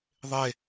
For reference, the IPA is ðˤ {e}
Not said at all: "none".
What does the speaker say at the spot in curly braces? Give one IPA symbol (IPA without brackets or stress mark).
e